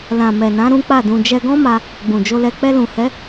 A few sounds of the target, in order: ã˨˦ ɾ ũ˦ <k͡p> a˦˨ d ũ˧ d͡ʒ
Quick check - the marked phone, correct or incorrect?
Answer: correct